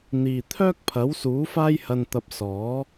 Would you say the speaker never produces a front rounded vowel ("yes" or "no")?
no